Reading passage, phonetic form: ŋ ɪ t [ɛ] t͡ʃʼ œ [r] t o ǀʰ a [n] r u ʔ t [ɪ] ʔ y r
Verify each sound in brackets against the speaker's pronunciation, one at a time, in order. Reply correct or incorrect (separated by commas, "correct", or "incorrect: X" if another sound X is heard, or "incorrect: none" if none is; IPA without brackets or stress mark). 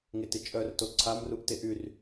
incorrect: ɪ, correct, incorrect: m, correct